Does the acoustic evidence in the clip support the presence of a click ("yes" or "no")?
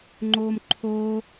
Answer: yes